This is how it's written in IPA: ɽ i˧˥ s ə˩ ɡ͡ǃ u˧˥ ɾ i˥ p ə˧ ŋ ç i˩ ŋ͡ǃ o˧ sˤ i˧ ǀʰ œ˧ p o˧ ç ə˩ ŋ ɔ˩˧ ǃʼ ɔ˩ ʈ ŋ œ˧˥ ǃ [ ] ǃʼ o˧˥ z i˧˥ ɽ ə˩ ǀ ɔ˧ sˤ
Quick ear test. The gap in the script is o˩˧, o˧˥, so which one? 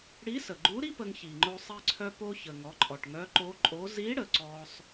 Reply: o˧˥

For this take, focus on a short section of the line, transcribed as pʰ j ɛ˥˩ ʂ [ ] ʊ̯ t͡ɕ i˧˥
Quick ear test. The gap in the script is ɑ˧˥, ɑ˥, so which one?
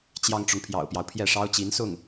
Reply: ɑ˥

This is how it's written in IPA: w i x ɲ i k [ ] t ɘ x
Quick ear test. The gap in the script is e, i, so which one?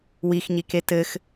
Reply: e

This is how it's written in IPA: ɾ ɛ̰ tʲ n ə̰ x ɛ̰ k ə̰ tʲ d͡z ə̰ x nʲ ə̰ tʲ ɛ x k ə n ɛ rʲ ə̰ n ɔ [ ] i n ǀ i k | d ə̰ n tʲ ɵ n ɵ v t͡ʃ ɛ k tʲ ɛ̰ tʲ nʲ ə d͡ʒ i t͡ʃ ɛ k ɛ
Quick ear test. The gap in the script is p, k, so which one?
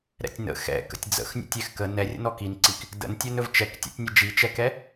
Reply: k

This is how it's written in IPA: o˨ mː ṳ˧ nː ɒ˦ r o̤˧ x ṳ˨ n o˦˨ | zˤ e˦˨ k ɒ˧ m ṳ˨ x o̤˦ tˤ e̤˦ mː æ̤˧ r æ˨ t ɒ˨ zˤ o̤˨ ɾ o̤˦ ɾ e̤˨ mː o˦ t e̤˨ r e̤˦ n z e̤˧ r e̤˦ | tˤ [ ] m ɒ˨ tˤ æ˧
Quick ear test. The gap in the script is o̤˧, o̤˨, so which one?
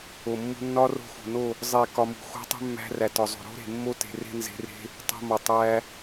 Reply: o̤˧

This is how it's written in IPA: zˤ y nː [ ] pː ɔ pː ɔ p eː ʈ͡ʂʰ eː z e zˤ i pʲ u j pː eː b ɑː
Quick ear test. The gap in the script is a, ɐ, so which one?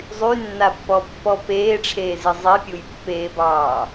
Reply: a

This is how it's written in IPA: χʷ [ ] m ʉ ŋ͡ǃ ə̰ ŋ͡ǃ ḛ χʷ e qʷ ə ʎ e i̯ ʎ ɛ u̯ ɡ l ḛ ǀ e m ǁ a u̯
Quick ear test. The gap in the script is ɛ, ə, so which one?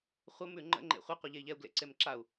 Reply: ə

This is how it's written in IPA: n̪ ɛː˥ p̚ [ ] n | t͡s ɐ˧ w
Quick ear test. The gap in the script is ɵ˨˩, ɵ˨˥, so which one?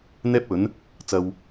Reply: ɵ˨˥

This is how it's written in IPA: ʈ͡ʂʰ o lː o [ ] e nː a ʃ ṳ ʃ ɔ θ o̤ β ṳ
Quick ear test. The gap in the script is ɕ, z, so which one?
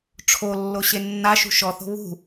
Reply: ɕ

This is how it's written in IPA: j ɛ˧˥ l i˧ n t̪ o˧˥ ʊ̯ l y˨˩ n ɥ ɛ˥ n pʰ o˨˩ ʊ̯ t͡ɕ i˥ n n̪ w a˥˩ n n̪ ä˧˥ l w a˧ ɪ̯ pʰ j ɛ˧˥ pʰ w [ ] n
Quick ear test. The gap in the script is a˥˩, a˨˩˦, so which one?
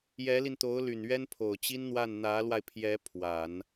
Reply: a˨˩˦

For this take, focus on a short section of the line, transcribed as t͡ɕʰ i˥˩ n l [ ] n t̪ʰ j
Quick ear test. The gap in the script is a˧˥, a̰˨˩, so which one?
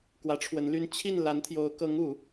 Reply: a˧˥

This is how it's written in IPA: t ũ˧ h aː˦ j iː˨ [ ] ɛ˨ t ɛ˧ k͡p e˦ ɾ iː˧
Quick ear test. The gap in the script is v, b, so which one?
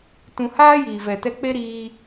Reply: v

